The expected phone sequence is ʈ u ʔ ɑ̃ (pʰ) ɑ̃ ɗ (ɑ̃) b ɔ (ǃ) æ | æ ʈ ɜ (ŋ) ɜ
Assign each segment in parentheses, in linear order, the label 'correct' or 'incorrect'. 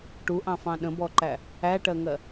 incorrect, incorrect, correct, correct

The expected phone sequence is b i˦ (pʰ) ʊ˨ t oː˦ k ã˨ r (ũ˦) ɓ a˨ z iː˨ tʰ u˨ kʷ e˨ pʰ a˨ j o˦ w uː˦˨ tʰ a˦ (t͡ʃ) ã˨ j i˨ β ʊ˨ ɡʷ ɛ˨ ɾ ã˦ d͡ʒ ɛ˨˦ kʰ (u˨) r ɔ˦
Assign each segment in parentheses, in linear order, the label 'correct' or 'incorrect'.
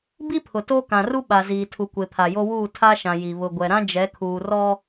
correct, incorrect, incorrect, incorrect

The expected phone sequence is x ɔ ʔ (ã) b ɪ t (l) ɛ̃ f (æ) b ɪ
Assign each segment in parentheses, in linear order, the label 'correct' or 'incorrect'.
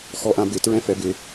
correct, incorrect, incorrect

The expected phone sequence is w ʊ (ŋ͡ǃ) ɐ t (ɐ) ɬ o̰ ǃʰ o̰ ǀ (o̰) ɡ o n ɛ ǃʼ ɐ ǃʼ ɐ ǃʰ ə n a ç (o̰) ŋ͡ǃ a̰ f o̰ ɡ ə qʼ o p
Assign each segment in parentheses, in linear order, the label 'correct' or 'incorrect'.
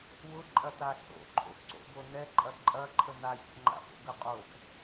incorrect, incorrect, correct, correct

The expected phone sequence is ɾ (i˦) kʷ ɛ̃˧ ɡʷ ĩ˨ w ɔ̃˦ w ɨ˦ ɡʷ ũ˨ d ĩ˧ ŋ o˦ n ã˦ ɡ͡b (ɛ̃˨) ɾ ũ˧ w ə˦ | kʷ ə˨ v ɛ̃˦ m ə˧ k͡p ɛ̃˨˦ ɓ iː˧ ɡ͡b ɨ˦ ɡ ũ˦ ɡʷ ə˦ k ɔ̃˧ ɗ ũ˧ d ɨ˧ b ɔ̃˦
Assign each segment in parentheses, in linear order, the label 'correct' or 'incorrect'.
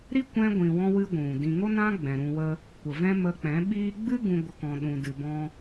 correct, correct

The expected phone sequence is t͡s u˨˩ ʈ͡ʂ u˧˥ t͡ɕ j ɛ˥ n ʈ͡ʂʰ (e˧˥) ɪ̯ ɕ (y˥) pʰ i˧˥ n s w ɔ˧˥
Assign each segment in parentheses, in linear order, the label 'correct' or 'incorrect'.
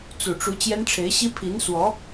correct, incorrect

